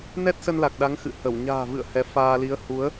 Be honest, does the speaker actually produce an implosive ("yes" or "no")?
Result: yes